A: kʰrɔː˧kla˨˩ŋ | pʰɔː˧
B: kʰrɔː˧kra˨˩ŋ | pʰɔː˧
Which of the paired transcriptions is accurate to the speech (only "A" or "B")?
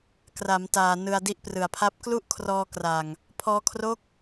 B